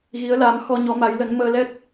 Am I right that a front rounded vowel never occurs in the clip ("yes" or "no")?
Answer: yes